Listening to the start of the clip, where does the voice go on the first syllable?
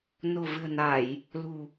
low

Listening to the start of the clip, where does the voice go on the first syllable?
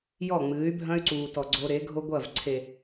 falling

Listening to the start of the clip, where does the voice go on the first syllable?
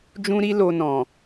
high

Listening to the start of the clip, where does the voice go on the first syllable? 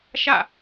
falling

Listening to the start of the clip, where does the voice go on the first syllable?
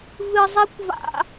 high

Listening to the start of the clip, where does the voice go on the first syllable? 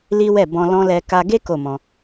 high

